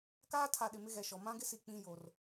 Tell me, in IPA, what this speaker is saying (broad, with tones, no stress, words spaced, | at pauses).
kaː˦tʰa˨ ɗɪ˨mɪ˦ɣɛ˨ʃɔ˨ mã˦ɡɪ˦si˨ k͡pĩ˦jo˨r